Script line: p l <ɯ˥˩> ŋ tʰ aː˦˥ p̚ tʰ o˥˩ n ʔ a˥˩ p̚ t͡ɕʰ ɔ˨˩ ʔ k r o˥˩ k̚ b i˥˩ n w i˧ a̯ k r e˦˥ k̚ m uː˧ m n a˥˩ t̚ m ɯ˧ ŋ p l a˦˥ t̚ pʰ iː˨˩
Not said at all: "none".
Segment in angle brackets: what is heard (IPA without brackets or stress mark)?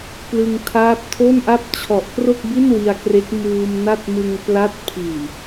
ɯ˧